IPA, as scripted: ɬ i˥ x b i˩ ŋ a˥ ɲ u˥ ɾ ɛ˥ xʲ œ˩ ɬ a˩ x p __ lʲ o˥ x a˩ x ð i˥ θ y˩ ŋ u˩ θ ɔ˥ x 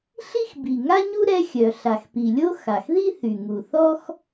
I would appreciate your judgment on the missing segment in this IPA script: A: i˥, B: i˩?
B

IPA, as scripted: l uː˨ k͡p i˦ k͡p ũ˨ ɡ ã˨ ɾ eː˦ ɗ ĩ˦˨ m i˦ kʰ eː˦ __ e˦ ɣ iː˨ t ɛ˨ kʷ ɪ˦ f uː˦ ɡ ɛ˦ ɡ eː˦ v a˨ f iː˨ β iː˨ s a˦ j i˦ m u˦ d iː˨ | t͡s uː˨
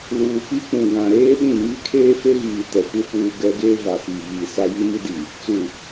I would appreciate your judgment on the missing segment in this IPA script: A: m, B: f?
B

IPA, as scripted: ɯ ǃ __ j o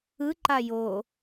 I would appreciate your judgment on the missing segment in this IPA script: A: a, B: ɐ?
A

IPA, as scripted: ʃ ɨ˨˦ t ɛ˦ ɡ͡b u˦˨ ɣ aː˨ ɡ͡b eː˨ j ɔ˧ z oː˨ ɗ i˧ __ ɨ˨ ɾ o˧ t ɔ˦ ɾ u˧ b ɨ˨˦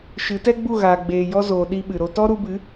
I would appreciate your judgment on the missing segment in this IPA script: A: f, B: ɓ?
B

